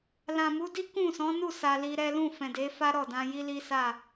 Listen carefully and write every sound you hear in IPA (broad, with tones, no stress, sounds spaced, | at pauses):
l ã˨ m u˨˦ d i˦ k ũ˦˨ s ɔ̃˨˦ n u˦˨ s a˧ l i˧ ɾ ɛ˦ l ũ˦˨ f ɛ̃˨ d e˨˦ f a˦ ɾ ɔ˦˨ d ã˧ j i˦ l i˦ s a˦˨